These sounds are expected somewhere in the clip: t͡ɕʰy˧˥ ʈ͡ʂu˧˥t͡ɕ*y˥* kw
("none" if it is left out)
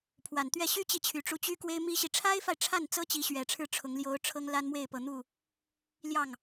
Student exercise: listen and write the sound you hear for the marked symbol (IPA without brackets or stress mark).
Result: y˥